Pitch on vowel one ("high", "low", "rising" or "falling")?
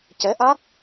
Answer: rising